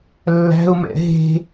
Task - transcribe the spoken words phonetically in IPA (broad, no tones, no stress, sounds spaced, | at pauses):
lː æ̤ ʊ̯ m ɛ̰ ɦ e̤